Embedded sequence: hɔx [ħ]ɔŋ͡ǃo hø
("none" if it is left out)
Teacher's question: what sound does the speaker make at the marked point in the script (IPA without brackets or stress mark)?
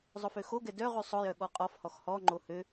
h